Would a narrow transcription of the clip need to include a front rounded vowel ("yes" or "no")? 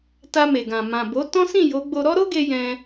no